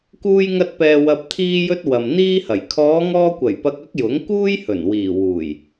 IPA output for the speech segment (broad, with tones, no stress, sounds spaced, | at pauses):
k uː˧ j ŋ ɐ˧ t̚ p ɛː˨ w ɐ˨ p̚ t̪ʰ iː˧ j ɵ˧ t̚ w ɐ˨ m n̪ iː˥ h ɐ˨˩ j kʰ ɔː˨˧ ŋ ɔː˧ kʷ ɐ˨˩ j p ɐ˧ k̚ ɐ˥ k̚ j ʊ˨˥ ŋ k uː˥ j h ɵ˨˩ n w iː˨˩ w uː˨˩ j